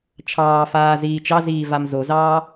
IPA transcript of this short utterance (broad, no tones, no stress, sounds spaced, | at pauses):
t͡ʃʰ ɑː f aː z iː t͡ʃ ɑ z iː v a m z o z ɑː